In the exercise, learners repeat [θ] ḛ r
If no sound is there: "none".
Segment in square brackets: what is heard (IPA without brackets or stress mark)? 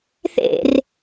θ